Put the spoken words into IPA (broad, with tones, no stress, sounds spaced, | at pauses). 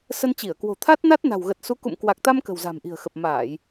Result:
s ə˧ n t͡ɕ i˧˩ ə̯ k w o̤˨˩ t̪ʰ a˦˥ t̚ n a˦˥ t̚ n a̤˨˩ w ɣ ə˨˩ t̚ s u˨˦ k ṵ˧˨ m k w a˨˩ k̚ t̪ a˧ m k ə̤˨˩ w z a̤˨˩ m ʔ i̤˨˩ ə̯ x ə˨˩ p̚ m aː˧˩˨ j